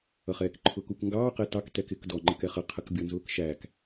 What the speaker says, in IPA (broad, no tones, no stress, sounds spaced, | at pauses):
ʌ χ ɛː k ǃʰ ʊː k u k ŋ ɡ ɑː q ɛ t ɑ k t ɛ k ɪ k d ɔ ŋ͡ǃ ə k ɛ χ ʌ qʰ ə k bʲ ɔ n z ʊː k ʃ æː k